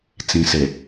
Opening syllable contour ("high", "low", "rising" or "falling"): low